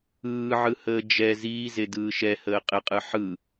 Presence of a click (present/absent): absent